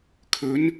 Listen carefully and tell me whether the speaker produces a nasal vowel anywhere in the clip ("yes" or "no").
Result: no